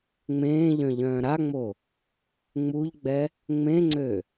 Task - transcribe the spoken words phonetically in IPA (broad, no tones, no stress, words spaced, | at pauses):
ŋ͡mẽːʎœ̃ ʎœ̃ːɾaŋ͡mo | ŋ͡muʎɡ͡bɛ | ŋ͡mẽŋ͡ǀø